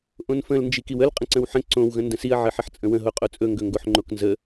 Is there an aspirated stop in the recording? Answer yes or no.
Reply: no